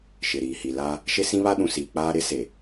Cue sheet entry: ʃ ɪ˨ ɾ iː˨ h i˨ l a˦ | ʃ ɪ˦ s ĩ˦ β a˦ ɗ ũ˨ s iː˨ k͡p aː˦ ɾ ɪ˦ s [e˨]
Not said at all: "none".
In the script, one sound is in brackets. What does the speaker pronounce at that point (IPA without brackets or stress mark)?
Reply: e˨